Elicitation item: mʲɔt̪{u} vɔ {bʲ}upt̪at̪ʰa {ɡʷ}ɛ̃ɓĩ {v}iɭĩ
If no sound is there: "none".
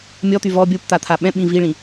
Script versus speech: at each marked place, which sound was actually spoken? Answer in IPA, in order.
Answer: y, bʲ, ɓ, v

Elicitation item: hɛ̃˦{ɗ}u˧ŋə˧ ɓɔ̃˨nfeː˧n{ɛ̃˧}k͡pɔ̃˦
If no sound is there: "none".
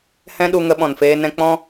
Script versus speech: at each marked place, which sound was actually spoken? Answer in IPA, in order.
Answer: ɗ, ɛ̃˧

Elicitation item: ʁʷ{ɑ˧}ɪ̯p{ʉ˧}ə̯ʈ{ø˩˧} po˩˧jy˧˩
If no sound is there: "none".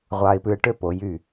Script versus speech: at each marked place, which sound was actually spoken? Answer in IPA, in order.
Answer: ɑ˧, ʉ˧, ø˥˧

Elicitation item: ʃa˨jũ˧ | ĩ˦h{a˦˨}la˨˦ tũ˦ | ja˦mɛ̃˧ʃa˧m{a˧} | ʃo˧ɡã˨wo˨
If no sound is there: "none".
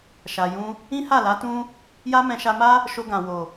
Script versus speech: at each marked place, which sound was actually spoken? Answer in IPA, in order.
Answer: a˦˨, a˦

